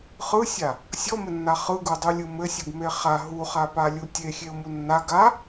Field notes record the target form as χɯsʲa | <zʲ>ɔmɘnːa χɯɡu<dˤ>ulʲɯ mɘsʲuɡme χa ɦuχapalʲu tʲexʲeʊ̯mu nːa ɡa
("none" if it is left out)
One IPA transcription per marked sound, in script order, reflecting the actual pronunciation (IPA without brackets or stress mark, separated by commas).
sʲ, dˤ